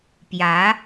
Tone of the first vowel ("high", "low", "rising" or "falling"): rising